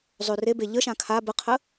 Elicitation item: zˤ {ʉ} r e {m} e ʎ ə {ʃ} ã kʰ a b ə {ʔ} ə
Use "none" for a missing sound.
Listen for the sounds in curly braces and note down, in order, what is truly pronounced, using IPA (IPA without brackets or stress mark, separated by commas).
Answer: ʉ, b, ʃ, qʰ